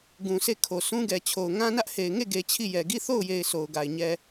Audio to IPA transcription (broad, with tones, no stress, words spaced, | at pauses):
ɡũ˨se˦˨kʰo˨ sũ˦ɡɛ˨t͡ɕʰo˨ʊ̯ ŋã˦nä˦ʔhe˨ɪ̯ ŋe˦˨ɡe˨ t͡ɕʰi˦˨jɛ˨ ɡi˦˨θo˦˨ʊ̯je˨ɪ̯ so˨ʊ̯ɡa˨ɪ̯ ɲɛ˨